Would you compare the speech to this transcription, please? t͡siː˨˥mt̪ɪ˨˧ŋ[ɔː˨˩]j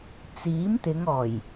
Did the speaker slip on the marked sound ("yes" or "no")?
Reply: no